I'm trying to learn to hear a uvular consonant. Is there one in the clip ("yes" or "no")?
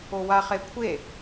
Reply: yes